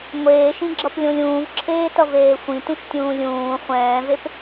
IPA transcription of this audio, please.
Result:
ŋʷeːʃĩɡ͡ǁʌplʲõlʲ ũːvǁʰeːtʌveː xʷĩtũʃtʲũː lʲũː χʷɛ̃ːvep

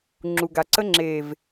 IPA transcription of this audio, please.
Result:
ŋ͡ǁu˨ɡa˨ǀə˦ ŋ͡ǁe˨v

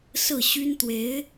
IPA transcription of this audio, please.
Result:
sɹ̩˥˩ɕy˥nt̪we˧˥ɪ̯

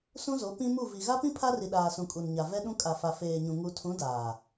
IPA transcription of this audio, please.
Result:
sũ˦zo˨˦ pĩ˦mu˦˨ vi˨ɣa˦pĩ˦ pʰa˦ri˨ ɗaː˨sũ˨ kʼu˨nɲa˨vɛ˦ɗũ˦ kʼa˨fa˨feː˨ɲũ˨ ŋu˨tʰũ˨˦ daː˨

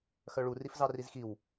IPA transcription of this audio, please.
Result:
xœɭu rifzɑrizxiw

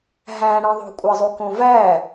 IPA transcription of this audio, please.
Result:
ɦæ̃ɽẽðˤo̤ kʷʼɑzˤukõvæ

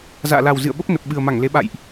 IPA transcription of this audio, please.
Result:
za̰ː˧˨la˨˩wzɨ̰˧˨ə̯ɓə˦˥p̚ nə˨˩p̚ɓɨ˨˩ə̯ma˧˩ŋle˨˦ ɓa̰˧˨jʔ

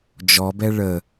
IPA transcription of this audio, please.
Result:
d͡ʒɔbɛ ɭə

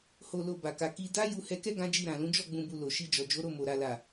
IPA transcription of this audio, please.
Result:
ho˨lo˨ ba˨ka˧ ki˧ da˦ ju˧hɛ˧kɛ˦ ɡã˦d͡ʒi˦˨ ɾã˨lũ˨˦d͡ʒɔ˦˨ ɡ͡bũ˨bu˨ lo˨ ʃi˧d͡ʒɔ˨ d͡ʒo˨˦ɾo˦˨mo˨ ɾa˨la˨

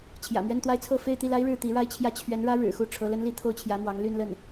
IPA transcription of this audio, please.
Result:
t͡ɕʰjä̰˨˩mɥɛ˥˧nt̪wa˥˧ɪ̯t͡sʰɤ˥˧ fe˥˧ɪ̯ t̪i˥˩la˥ɪ̯ ɻɻ̩˥˩t̪i˧˥ɻa˥˧ɪ̯t͡ɕʰjä˥˩ t͡ɕʰɥɛ˧˥nɻä˥ɻɻ̩˨˩xu˥˩ ʈ͡ʂʰɤ˧˥lə˥nli˥ t̪ʰo˥˩ʊ̯t͡ɕʰjä˧˥mwɑ˧˥ŋ ly˥˧nlə˥˩n

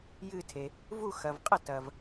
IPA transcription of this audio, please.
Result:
jɨ˧˩tʰe˩ | vu˧˩xɐ˩vqʼɐ˧˩ tɐ˩v

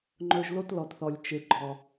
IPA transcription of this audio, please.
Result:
ŋ͡ǃɵ˨ʒlo˦t lɔ˨tθɔ˨lʲ t͡ʃe˨ɡ͡ǃɔ˨

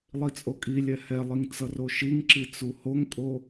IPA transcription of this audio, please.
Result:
lˠit͡sʼokʼilʲɛ hɛlˠiŋ t͡sʌroʃiŋǁi t͡suhoŋkʼo

